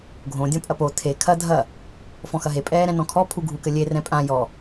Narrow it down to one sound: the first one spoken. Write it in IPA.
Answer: ɡʱ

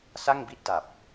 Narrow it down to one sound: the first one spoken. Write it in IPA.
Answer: s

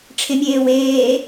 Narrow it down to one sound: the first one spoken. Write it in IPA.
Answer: ʈ͡ʂʰ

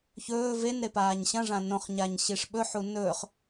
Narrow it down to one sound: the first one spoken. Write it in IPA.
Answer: ç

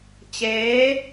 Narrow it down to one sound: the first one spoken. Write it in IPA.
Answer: t͡ɕ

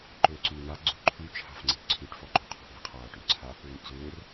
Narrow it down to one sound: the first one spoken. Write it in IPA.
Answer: ǃ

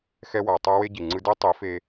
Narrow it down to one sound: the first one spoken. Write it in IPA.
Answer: x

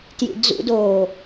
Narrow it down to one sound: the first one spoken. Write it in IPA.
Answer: t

